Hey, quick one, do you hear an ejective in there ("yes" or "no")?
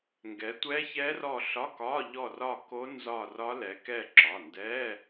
no